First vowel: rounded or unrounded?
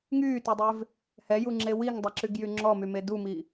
rounded